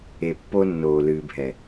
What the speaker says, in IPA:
e˨ pː o˦ nː oː˨ l ɨː˨ bʱ ɛ˨

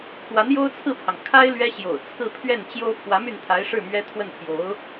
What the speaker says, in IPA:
kʰ w a˧˥ n j o˥ ʊ̯ t͡sʰ ɹ̩˥˩ pʰ ɑ˩ ŋ kʰ a˥ ɪ̯ l ɥ ɛ˥ ɕ j o̰˨˩ ʊ̯ t͡sʰ ɹ̩˥˧ pʰ ɥ ɛ˥˩ n t͡ɕ j o˥ ʊ̯ pʰ w ä˧˥ m y˥˩ n t̪ʰ a˧˥ ɪ̯ ʂ ɻ̩˥˩ m ɥ ɛ˥ t̪ʰ w ə˥˩ n pʰ j o˧˥ ʊ̯

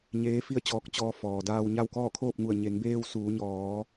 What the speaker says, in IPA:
ɲ eː˧˥ f i˥˨ ə̯ t͡ɕ ɔː˧ k̚ t͡ɕ ɔː˧ f ɔː˩ d aː˧ w ɲ a˥˨ w k ɔː˥˨ kʰ oː˥˨ p̚ ŋ u˧˩ ə̯ ɲ e˩˧ ŋ b eː˧ w s uː˩˧ ɲ ɔː˩˧

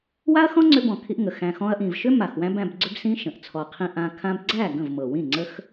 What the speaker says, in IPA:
w a˦ ɐ̯ x ɔ̃˦ ŋ͡ǀ ʏ˧ b ɔ̃˨ kʰ i˧ ʔ ŋ ə˨ x æ̃˨ x ɔ̃˧ ɐ̯ ʔ ĩ˨ v ʃ ʏ˦ m a˨ x w æ̃˦ b æ̃˧ b ɡ͡ǀ ʏ˦ b s ĩ˦ ʃ ə̃˨ ʔ t͡sʰ ɔ˨ qʰ ĩ˧ ʔ ã˧ kʰ ã˧ b ɡ͡ǀ æ˦˨ ɡ ə̃˦˨ v m ɤ˨ w ĩ˦˨ ŋ͡ǀ ə˦ x

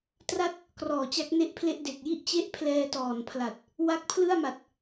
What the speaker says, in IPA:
t r a˥˩ t̚ | k r ɔː˨˩ t͡ɕ a˦˥ k̚ n e˥˩ ʔ pʰ l e˥˩ ʔ d e˨˩ k̚ j i˥˩ ʔ t͡ɕ e˥˩ ʔ pʰ l ɛː˧ t ɔː˨˩ n pʰ l a˨˩ t̚ | w a˦˥ k̚ pʰ l ɯ˥˩ a̯ m a˨˩ t̚

